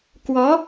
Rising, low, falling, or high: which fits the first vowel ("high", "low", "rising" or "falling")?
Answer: rising